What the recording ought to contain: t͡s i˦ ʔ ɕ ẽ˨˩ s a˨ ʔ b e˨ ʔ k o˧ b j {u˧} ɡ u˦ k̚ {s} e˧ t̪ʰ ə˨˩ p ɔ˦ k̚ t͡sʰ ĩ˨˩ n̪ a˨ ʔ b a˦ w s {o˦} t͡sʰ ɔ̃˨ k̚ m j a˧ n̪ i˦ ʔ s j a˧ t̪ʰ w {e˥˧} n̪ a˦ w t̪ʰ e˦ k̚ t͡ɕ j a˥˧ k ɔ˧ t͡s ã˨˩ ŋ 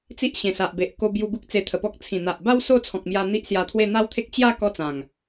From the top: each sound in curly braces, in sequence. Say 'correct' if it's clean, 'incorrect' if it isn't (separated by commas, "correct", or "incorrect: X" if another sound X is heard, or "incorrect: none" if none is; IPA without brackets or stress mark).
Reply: correct, incorrect: t͡s, correct, correct